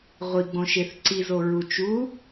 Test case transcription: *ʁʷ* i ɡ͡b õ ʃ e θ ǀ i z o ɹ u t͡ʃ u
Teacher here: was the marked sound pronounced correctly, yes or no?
yes